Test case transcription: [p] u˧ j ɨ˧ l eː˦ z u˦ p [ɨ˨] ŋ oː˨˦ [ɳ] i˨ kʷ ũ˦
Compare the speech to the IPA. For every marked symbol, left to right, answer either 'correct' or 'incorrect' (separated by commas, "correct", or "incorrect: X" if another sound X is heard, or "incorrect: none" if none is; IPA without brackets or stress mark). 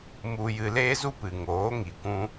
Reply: incorrect: m, correct, incorrect: ŋ